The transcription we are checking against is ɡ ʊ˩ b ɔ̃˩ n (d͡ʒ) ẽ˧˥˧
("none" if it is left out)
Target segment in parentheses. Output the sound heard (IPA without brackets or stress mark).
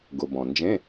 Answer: d͡ʒ